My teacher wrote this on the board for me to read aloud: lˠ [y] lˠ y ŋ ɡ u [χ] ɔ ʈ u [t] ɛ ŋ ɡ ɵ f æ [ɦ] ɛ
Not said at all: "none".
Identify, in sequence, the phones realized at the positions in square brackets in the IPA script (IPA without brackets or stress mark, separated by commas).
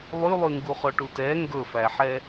y, χ, t, ħ